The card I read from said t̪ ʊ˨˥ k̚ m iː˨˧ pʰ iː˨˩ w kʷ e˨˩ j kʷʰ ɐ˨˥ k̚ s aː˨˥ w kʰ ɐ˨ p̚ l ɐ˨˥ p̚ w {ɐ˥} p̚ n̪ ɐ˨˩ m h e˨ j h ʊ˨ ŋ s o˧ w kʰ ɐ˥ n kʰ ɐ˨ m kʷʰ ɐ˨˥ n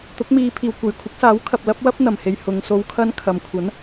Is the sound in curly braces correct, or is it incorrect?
correct